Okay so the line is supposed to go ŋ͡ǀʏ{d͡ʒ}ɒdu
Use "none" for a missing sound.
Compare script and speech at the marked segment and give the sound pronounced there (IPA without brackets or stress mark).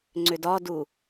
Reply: d